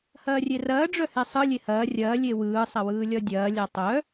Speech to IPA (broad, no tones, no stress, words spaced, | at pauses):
hɐːrʲerɐː ɖ͡ʐœhesˤɯ lʲehɐː rʲɐː lʲewɯː sˤɐwɯːlʲɒdʲɐː lʲatˤœ